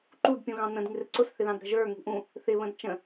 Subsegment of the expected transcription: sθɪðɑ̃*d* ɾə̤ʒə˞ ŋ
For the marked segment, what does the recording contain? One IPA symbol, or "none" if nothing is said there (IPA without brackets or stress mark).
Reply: d